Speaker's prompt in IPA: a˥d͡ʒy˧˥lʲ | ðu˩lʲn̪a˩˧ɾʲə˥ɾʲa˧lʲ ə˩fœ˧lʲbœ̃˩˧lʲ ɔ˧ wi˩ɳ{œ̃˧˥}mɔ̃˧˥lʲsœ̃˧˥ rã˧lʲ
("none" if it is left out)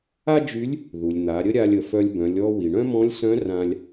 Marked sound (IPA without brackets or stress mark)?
œ̃˥